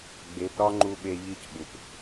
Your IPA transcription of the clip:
ɡ͡b e˨˦ p ɾ ɒ˦ ŋ͡ǃ u˧ ɓ e˧ ʎ i˧ c ɓ u˨ p

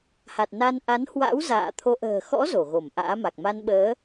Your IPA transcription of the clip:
h a˨˩ t̚ n a˧ n ʔ a˨˦ n h w a̰˧˥ w z a̰ː˧˨ t̪ʰ o˧ ʔ ə̤ː˨˩ x ɔ̰˧˥ z o˧˩ ɣ o˧˩ m ʔ a̰ː˧˥ m a˨˩ k̚ m a˧ n ɓ əː˨˦

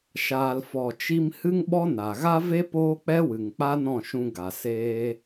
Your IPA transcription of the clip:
ʃ aː˨ l f ɔ˨ t͡ʃ i˧ m h ɨ˦ ŋ ɓ ɔ˦ n a˨ ɣ a˦ v e˦ p oː˦ k͡p ɛ˦ w ɨ˨ ŋ k͡p a˦ n ɔ̃˦˨ ʃ ũ˧ ɡ a˨ s eː˧

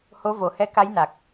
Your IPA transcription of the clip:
h o˧˥ v o˨˩˦ h ɛ˧ k a˧˥ j n a˨˩ k̚

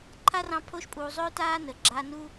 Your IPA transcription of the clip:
ǃʰ a˥ r ɑ̃˦ pʰ oː˦ ʃ pʼ uː˨ zˤ ɵː˥ t aː˥ n ə˩ ɡ͡ǁ aː˦ n u˥

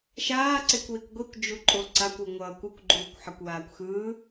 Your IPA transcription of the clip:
ʃ aː ǀ e kʷ w i kʷ ɡʷ i kʷ d͡ʒ u ǃʼ o ǀ a kʷ u ŋʷ ʌː kʷ ɯ kʷ ɡ͡ǃ uː kʷ ħ ʌ kʷ w aː kʷ x ɯː

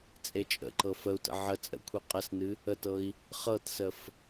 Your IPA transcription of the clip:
t͡sʼ e t͡ʃʼ ə̰ ǃ ɤ f ə u̯ t ə̰ ʕ ə t͡sʼ ə̰ kʷʰ i qʼ ə s n ɨ | ə t ɤ i̯ | χ ɤ t s ə f

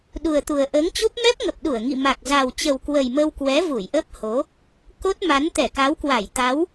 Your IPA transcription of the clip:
ɗ u˨˩ ə̯ t̪ u˨˩ ə̯ ʔ əː˨˦ ŋ t͡ɕ u˦˥ p̚ m ɛ˦˥ p̚ ŋ ə˨˩ p̚ ɗ u˧˩ ə̯ ŋ ḭ˧˨ m a˨˩ k̚ z a˨˩ w t͡ɕ ə˨˩ w k w ə˨˩ j m ə˧ w k w ɛ˨˦ v u˧˩ j ʔ ə˦˥ p̚ h o˨˦ | k o˦˥ t̚ m a˨˦ n t̪ ɛ˧˩ k a˨˦ w k w a˧˩ j t̪ a˨˦ w

